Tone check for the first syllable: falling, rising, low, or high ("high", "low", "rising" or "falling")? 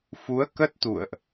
rising